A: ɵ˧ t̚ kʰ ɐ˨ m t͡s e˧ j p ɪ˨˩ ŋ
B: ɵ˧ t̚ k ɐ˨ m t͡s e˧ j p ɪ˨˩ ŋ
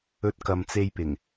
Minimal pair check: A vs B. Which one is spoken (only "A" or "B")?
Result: B